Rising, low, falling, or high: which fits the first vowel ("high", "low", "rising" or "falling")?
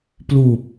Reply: low